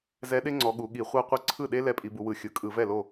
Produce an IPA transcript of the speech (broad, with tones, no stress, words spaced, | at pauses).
zɛ˧˥ɗe˥ŋ͡ǀɔ˩˧ ɠu˩˧ɠi˧˩˧χʷɤ˥qʷɯ˥˩ ǀʰɯ˥˩ɗe˥ lɛ˧˥pʼi˩˧bu˩˧wɯ˩˧ xʲɯ˩˧ kʼɯ˧˩˧vɛ˥˩lo˥˩